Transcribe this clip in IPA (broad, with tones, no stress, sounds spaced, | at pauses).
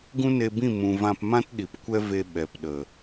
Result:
ɡ ũ˦ n e˧ b ĩ˦˨ m ũ˨ v ã˧ p m ã˦ t ɗ i˨ p kʷ ɛ˦ v e˧ ɓ ɛ˨ p ɗ ə˨